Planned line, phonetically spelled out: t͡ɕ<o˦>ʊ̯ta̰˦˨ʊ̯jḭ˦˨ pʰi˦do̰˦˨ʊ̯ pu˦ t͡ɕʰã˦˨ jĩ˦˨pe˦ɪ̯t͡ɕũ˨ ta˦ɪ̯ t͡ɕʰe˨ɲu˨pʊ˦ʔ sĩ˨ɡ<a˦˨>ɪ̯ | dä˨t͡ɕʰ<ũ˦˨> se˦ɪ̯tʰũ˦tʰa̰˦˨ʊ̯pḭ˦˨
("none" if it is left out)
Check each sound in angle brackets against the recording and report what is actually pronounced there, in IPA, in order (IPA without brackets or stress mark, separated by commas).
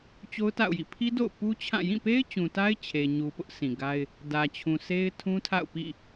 o˦, a˦, ũ˨